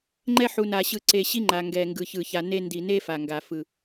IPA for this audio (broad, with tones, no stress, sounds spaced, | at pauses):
ŋ͡ǃ ɛ˦ ħ u˨ n a˨ ɕ ɯ˨ ǀ e˨ ɕ i˦ ŋ͡ǃ a˨ ŋ ɡ ɛ˨ ŋ ɡ ɯ˨ ç ɯ˨ ç a˨ n e˦ n d i˨ n e˦ f a˨ ŋ ɡ a˨ f ɯ˨